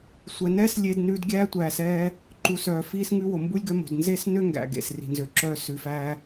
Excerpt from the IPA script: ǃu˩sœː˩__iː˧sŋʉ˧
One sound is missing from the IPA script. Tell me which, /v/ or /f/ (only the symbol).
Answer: f